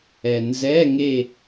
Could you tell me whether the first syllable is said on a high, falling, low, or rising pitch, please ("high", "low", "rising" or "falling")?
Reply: low